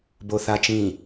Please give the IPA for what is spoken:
b o θ a t͡ʃ ĩ

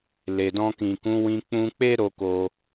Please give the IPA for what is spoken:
l e˨ d ɔ̃˧ k ĩ˨ k ũ˨˦ w ĩ˧ k͡p ũ˧ k͡p e˦ ɾ o˦ k o˧

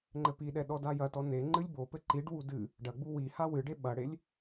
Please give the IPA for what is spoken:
ŋ͡ǃ ɘ p i ɗ ɛ ɗ ɔ d a j ɐ t ɔ n e ŋ͡ǃ ɨ lʲ b o p ɘ ǃ i ɖ w u d ɨ | ɖ ɐ ɡ͡b u w i h a w ɨ ɖ e ɓ ɐ ɽ e lʲ

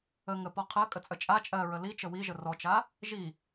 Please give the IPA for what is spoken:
ə ŋ ə p ɔ qʰ ɜ kʼ ə t͡sʼ ə t͡ʃʼ a t͡ʃʼ ɜ ɹ ə l i t͡ʃ ə w i ʒ ə r ɔ t͡ʃ a | ʒ i

